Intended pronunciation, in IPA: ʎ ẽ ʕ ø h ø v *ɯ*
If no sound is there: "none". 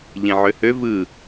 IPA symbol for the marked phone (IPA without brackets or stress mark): ɯ